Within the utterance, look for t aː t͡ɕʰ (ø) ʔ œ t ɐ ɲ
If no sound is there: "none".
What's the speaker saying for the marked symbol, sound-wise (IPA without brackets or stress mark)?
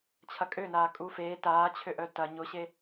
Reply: ø